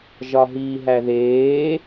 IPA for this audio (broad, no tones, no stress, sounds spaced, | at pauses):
ʒ ɒ ɦ iː ɦ æ ð eː